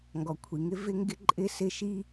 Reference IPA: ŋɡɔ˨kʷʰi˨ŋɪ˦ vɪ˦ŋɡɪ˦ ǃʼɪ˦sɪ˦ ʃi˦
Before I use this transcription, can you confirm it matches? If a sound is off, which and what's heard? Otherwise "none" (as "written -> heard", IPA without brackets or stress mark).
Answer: none